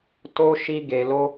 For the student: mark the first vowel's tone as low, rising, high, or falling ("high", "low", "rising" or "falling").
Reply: high